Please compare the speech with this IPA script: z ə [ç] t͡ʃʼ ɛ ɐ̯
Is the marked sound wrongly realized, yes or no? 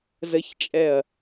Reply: no